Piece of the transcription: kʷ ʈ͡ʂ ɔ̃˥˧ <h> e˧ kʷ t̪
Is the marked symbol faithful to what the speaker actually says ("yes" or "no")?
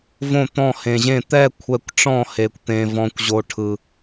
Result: yes